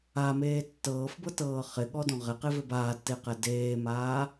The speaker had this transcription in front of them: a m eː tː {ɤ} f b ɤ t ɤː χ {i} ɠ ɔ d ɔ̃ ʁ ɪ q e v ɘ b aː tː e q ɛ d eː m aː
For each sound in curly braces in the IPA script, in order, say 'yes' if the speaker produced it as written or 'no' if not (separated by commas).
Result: no, no